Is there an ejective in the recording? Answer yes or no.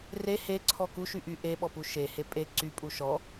yes